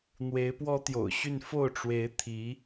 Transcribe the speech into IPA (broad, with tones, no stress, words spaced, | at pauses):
n̪we˧˥ɪ̯pwɔ˥t̪jo̰˨˩ʊ̯ɕy˥˧n fo˥˩ʊ̯ ʈ͡ʂwe˧˥ɪ̯ t̪ʰi˧˥